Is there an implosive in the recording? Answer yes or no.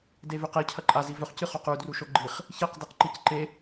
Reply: no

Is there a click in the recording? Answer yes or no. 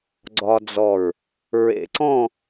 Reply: yes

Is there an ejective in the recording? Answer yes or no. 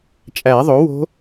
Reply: yes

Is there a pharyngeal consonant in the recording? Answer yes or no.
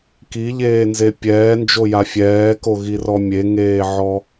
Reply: yes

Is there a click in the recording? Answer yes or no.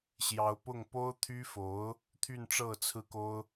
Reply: no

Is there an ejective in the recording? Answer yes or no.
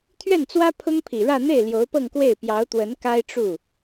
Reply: no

